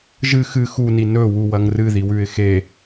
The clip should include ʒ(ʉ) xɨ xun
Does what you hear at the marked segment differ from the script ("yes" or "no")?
yes